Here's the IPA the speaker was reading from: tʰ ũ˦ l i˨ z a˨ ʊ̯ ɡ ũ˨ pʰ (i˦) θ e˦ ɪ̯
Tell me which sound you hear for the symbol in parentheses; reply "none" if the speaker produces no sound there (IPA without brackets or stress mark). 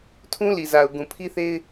i˦